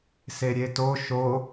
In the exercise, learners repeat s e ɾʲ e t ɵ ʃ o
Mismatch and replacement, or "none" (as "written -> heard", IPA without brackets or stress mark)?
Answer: ɵ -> o